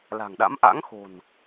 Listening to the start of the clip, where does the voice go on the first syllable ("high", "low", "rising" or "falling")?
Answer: low